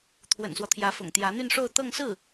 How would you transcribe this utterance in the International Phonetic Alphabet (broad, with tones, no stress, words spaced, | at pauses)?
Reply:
t̪ʰwə̰˨˩nswɔ˦t̪ʰjä˧˥fʊ̰˨˩ŋ t̪jä˧˥n̪y˥˧nʂo˥˧ʊ̯ t̪ɤ˥˧ŋsɹ̩˥˩